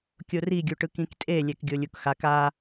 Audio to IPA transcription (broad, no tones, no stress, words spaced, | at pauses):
kʲoriɡʲuʈɯk ĩktʼe lʲɛkɡʲolʲukxak a